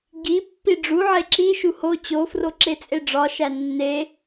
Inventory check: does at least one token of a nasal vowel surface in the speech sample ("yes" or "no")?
no